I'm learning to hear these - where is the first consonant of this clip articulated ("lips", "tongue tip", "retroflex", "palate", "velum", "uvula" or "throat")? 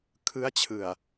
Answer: velum